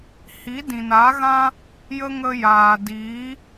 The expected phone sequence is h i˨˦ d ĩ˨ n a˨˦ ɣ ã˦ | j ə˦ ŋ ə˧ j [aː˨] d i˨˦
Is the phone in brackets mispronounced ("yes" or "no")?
no